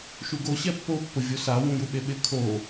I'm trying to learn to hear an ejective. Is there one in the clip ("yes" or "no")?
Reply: no